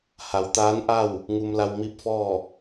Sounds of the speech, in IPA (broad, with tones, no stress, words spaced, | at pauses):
ha˩˧wt̪aː˧˥nʔa˥˨w | ŋu˧mla˧wmi˥˨p̚fɔː˥˨